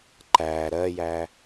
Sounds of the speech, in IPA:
ǃ æ ɾ ɜ j æ

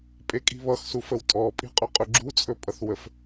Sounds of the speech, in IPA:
pʼ e kʼ i̤ β ʌ x s u f ə w tʼ ɔ pʼ i̤ qʼ ɵ qʼ ɵ ɡ͡ǁ u t͡sʼ ɵ pʼ ʌ θ w ə f

